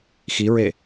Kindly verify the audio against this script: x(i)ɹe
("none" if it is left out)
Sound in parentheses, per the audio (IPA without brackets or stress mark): i